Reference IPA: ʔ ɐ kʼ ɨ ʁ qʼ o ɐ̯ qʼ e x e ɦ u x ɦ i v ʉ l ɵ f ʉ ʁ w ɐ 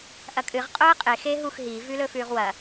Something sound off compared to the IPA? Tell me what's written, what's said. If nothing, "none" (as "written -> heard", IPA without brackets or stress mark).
none